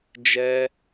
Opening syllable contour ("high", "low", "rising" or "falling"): high